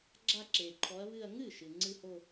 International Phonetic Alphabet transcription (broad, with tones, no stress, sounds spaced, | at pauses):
ɡ͡ǁ a˥˧ ǁ e˨ ǃʰ ɔ˧˥ ɐ̯ β ɨ˥˧ ɐ̯ ŋ ɨ˥˩ ʃ ɨ˨ ŋ͡ǀ ɨ˥˧ h o˥˧